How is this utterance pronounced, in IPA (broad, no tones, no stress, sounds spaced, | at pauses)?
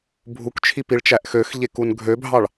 bʱ u k t͡ʃʰ i p i ɭ t͡ʃ æ ʔ x ø x ʎ e k u n ɡʱ ø bʱ ɑ ɭ